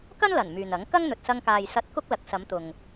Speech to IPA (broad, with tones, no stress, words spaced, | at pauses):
kɐ˥n lɐ˨˩n myː˨nɐ˨˥ŋ kɐ˥ŋn̪ɵ˨t̚sɐ˧ŋkaː˨j sɐ˧t̚ kʊ˥k̚lɐ˨˥k̚ sɐ˨˧mt̪ʊ˨ŋ